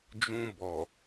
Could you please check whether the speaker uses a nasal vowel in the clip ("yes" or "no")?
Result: yes